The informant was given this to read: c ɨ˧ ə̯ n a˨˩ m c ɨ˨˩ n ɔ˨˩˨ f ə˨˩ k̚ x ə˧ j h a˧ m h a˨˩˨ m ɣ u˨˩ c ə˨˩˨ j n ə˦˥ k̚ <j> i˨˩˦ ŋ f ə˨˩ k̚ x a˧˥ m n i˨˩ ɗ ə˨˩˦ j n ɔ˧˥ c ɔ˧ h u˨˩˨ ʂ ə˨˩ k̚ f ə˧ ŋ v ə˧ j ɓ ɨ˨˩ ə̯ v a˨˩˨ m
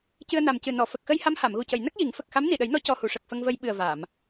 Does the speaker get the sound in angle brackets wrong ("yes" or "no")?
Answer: no